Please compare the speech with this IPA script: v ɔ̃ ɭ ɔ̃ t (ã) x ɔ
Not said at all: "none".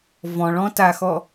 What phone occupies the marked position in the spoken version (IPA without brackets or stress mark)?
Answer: a